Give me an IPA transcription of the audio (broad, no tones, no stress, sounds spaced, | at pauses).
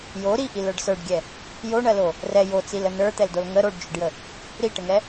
j o ɾ i ʔ i l ə˞ ɖ s ə˞ ɖ ɡʲ ɛ | j o ɳ ɜ l o | r ɛ j o t͡s i l ə n ə˞ t̪ ɛ l d o l ŋ ə ɾ o ɖ d͡ʒ ʏ ɖ j ə | ɾ i ʈ ə ŋ ɛ